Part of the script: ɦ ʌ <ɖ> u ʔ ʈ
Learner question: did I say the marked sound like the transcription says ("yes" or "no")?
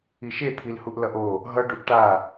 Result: yes